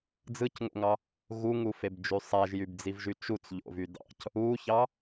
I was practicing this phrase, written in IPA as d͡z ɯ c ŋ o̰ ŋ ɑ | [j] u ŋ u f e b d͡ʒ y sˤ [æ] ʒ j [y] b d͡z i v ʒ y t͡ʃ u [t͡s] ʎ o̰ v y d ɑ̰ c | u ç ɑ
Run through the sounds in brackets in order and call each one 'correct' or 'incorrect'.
incorrect, correct, correct, correct

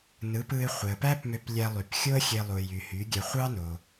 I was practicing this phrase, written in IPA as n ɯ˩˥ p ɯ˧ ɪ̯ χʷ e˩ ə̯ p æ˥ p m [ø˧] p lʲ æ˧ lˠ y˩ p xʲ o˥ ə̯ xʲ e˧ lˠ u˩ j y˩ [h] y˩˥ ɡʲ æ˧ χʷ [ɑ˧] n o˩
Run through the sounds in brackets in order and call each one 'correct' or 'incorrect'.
correct, correct, incorrect

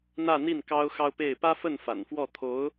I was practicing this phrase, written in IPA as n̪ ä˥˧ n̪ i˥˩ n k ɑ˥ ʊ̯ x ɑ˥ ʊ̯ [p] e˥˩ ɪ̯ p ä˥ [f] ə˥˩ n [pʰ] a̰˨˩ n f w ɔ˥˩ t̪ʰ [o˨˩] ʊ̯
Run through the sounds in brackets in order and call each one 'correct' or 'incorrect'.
correct, correct, incorrect, incorrect

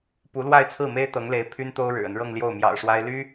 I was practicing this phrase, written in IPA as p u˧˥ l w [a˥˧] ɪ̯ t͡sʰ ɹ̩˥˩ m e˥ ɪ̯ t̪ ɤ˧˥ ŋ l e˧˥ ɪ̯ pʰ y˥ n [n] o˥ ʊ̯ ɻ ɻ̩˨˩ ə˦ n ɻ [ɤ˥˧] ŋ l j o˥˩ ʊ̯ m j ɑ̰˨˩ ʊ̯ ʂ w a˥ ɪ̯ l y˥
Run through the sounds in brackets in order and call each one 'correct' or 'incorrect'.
correct, incorrect, correct

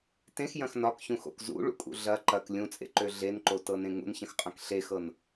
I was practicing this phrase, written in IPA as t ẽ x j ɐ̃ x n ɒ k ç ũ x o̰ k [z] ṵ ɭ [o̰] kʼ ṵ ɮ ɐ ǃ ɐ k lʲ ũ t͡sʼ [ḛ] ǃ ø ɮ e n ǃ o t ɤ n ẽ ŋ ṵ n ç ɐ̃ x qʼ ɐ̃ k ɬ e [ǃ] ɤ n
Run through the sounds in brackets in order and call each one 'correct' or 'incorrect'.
correct, incorrect, correct, incorrect

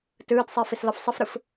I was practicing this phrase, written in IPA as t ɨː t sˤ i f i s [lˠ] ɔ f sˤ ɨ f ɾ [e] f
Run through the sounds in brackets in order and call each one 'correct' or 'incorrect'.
incorrect, incorrect

